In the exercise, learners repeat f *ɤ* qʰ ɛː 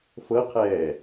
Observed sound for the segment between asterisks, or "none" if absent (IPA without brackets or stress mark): ɤ